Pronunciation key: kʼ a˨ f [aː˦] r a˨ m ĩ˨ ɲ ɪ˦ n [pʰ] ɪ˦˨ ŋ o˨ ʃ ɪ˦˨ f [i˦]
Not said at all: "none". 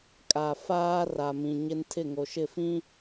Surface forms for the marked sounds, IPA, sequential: aː˦, tʰ, ĩ˦

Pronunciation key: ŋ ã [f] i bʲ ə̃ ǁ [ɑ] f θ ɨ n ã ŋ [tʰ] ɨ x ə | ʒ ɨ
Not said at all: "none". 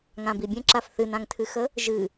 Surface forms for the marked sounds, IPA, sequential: b, a, tʰ

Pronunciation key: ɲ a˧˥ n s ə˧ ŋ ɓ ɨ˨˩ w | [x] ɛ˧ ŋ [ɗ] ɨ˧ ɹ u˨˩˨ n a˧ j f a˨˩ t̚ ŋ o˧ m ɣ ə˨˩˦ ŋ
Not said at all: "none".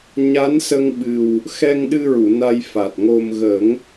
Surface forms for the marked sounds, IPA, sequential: x, ɗ

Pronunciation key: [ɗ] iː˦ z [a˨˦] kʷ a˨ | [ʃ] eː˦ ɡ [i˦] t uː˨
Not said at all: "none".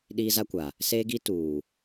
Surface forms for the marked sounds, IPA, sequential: ɗ, a˦, s, i˦

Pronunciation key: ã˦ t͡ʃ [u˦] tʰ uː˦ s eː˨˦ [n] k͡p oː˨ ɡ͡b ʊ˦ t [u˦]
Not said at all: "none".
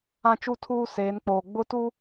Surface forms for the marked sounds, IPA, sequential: u˦, n, u˦

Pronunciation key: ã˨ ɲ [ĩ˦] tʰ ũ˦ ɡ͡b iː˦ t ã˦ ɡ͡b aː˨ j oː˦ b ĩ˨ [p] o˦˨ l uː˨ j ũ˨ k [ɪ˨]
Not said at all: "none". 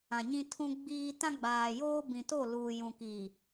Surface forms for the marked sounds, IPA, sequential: ĩ˦, t, i˨

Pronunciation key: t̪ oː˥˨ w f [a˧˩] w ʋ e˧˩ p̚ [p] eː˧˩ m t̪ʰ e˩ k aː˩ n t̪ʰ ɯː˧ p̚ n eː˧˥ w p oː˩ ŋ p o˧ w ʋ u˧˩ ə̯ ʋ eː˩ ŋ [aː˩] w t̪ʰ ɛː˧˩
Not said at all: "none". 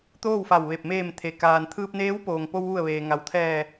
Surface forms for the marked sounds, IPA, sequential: a˧˩, m, a˩

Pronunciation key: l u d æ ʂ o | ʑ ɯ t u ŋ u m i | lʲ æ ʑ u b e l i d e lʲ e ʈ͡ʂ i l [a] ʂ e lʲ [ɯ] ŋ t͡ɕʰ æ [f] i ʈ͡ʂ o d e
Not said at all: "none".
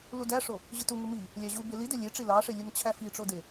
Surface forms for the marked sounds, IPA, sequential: ɑ, ɯ, f

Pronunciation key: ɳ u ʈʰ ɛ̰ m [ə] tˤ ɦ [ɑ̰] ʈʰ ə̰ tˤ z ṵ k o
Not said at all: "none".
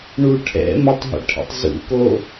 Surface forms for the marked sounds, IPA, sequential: ə, ə̰

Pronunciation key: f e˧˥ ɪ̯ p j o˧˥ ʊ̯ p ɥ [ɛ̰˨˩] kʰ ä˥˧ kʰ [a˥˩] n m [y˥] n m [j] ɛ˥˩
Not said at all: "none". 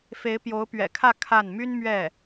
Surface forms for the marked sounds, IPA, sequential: ɛ̰˨˩, a˥˩, y˥, ɥ

